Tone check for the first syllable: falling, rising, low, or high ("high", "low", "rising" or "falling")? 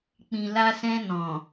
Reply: low